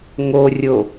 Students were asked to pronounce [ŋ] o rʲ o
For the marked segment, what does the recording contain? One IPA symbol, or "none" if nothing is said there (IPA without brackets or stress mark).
ŋ